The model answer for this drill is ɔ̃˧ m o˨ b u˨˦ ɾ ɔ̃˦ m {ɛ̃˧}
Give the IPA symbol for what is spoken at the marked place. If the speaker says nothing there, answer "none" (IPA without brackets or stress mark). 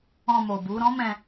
ɛ̃˧